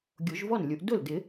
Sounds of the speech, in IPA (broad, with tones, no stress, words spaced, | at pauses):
ɡʲo˨˩˦ʒvɔ˥˩n lʲu˨˩˦ʔ dʊ˥˩ldɪ˨˩˦